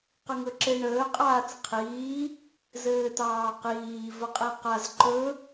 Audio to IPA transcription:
q ə ŋ ɵ ǁ e ɳ əː qʼ aː t͡s qʰ iː | z ɘː t ɑː q iː v ə qʼ e q a z ǃ ɵ

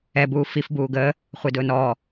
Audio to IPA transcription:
ɛ b uː f i f b uː ɡ əː | χʷ e d ʊː n ɔː

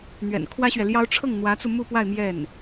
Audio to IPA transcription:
n̪ ɥ ɛ̰˨˩ n kʰ w ä˥ ɕ ɥ ɛ˨ l j ɑ˥ ʊ̯ ʈ͡ʂʰ ɤ˥˩ ŋ n̪ w ä˧˥ t͡s u˧ m u˥˧ p w a˥˧ ɪ̯ m j ɛ˥˩ n

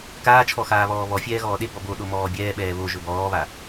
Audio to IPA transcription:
k aː t͡ʃʰ ɔ x aː β ɔː β ɔ fʲ ɛː ɣ ɔː ɗ e b ɔ b o ɗ o m ɔː bʲ ɛː ɓ ɛː β o ʒ ɵ b ɔː β a

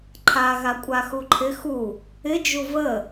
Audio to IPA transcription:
ǃʰ a ɣ a kʷʼ a x u ǃʰ ɪ x u | ɪ d͡ʒ u v ə

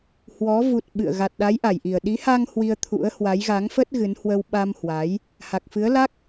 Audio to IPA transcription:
h w ɔ˨˦ v u˨˩ t̚ ɓ ɨ̰˧˨ ə̯ ɣ a˨˩ t̚ ɗ a˨˦ j ʔ a˧˩ j ʔ i˨˩ ə̯ ɗ i˨˦ h a˧ ŋ h w i˧ ə̯ t̪ʰ ṵ˧˥ ə̯ h w a˨˦ j ɣ a˨˦ ŋ f ə˦˥ t̚ ɣ ɨ˨˦ n h w ə˧ w ɓ a˧ m h w a˨˦ j | h a˨˩ k̚ f ɨ˨˦ ə̯ l a˦˥ k̚

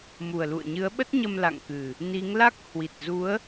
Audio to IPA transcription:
m u˨˩ ə̯ l ṵ˧˨ ə̯ ɲ ɨ˨˦ ə̯ ɓ ə˦˥ t̚ ɲ ə˧ m l a̰˧˨ ŋ k ɨ˨˩ | n i˨˦ ŋ l a˦˥ k̚ h w i˨˩ t̚ z u˨˦ ə̯

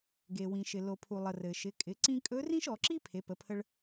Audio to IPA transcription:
ɡ e˩ w ĩ˩ ʃ ɪ˩ l o˩ pʰ u˩ lˠ ə˩ r ɘ˩ ʃ ɪ˩˧ kʼ ɪ˩˧ ǀ ĩ˧ kʼ ɵ˧˥ r ĩ˥ ʃ ɔ˩˧ ǁ i˥ pʰ e˩˧ p ə˩˧ pʰ ə˧ ɭ

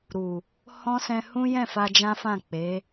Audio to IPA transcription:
ɾ u˨ | h ɔ̃˦ s ɛ̃˧ h ũ˦ j ɛ̃˦˨ f a˧ d͡ʒ ã˦ f ã˦˨ k͡p e˨˦

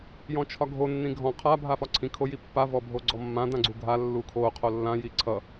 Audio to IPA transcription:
j ɔ̃ t͡ʃʰ ɒ ɡʱ o nː ĩ ɡʱ ɔ̃ qʰ a bʱ a f ɒ ǀʰ ĩ kʰ o j i pː a v ɔ bʱ o ɡ͡ǀ ɔ mː ã d ã ɡ͡ǀ u ɡʱ a lː u kʰ o qʰ o lː ã j i ǀʰ ʌ

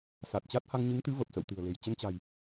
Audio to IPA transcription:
s a˨˩ t̚ t͡ɕ a˦˥ t̚ h a˧ ŋ ɲ ɨ˨˦ ŋ t̪ ɨ˨˦ v ə˨˩ p̚ s ə̰˧˨ w t̪ ɨ̤˨˩ ə̯ l e̤˨˩ j t͡ɕ ə˧ n t͡ɕ a̤˨˩ j

